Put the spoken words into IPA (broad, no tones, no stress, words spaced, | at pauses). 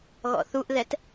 ɣɔ̰θuʔðɛt